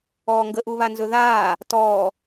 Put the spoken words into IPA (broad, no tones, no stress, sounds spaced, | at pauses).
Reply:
ɔː ŋ ɡ ə ʔ u β a n z ɵ ð aː | t ɔː